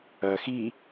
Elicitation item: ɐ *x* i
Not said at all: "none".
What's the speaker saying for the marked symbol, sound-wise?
x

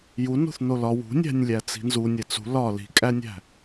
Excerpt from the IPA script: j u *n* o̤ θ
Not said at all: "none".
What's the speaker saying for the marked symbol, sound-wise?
n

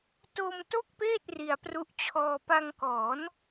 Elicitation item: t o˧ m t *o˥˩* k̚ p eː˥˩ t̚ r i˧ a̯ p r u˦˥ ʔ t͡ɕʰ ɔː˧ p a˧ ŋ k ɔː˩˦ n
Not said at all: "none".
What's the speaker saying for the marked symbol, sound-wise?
o˥˩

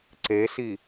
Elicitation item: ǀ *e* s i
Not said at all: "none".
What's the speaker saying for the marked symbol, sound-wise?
e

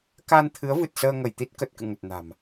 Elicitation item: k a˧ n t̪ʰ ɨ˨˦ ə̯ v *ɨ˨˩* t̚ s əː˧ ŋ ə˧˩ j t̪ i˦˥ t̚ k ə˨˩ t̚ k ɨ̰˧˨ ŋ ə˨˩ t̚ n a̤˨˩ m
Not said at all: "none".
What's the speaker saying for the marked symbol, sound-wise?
ɨ˨˩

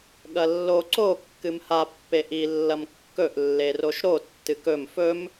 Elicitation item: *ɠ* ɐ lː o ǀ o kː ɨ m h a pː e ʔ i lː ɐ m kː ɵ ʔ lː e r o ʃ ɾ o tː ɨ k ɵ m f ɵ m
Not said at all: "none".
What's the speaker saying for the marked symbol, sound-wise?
ɠ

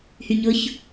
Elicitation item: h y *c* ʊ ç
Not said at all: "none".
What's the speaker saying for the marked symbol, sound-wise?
ɲ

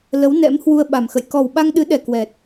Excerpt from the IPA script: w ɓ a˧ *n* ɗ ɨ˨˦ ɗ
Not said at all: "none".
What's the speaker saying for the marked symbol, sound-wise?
ŋ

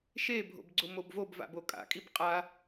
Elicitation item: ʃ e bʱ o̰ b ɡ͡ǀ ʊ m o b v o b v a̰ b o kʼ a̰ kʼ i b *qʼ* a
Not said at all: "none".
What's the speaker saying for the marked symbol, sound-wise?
qʼ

